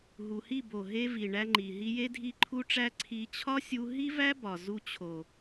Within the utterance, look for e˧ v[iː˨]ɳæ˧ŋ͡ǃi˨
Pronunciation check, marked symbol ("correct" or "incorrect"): incorrect